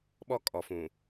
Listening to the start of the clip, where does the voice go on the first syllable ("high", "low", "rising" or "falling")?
high